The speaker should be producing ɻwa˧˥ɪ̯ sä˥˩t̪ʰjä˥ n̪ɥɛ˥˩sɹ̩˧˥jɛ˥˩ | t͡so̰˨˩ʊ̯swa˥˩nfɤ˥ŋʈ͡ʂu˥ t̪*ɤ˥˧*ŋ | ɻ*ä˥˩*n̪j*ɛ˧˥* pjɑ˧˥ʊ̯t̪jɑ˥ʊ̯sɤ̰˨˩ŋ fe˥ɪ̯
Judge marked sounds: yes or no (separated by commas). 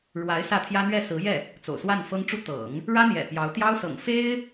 no, no, no